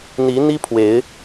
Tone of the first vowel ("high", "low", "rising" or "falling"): rising